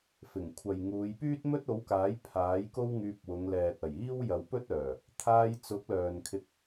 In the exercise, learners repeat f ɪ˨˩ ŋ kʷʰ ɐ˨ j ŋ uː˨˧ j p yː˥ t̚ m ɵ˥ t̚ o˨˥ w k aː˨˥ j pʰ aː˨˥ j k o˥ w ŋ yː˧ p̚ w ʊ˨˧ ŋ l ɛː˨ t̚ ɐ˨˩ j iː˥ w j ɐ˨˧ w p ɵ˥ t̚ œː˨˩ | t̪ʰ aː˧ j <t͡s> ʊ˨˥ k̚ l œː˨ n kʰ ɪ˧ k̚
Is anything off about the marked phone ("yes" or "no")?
no